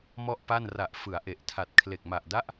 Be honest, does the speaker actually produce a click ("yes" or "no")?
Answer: no